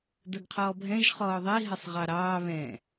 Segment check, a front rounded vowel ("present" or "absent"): absent